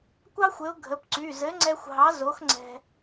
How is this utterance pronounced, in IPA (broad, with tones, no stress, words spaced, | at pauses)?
kʷɑ˥xʷɘ˨˥ʊ̯ɡʱə˩˧˩pǀy˩˧˩ zɘ˨˥ŋ͡ǀɛ˧xʷ ɦɑ˨˥zo˨˥xŋ͡ǀɛ̤˧